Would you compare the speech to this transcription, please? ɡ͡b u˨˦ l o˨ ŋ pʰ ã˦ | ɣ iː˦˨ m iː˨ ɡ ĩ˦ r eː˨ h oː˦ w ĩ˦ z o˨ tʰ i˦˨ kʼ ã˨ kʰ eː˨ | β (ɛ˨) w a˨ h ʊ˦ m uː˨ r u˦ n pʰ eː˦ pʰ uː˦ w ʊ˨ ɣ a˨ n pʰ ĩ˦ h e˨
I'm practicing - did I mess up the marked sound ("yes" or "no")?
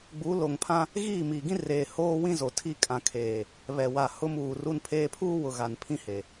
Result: no